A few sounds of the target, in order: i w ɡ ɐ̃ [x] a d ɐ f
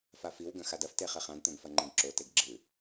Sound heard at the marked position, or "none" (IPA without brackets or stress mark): x